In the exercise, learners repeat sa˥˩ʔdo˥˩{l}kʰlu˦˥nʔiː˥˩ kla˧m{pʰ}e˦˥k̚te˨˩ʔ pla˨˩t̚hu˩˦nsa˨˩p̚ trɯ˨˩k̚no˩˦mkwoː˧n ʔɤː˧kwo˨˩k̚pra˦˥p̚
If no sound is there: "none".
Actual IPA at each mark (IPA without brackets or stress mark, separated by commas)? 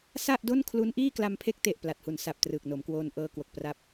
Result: n, pʰ